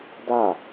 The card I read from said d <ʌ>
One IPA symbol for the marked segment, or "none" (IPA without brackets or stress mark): a